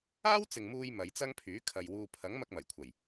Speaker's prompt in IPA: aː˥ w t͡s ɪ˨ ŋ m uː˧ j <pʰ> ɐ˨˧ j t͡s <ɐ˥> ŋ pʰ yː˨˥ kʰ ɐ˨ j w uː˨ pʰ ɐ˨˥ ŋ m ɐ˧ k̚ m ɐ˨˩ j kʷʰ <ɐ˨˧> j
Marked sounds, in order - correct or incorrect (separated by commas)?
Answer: incorrect, correct, incorrect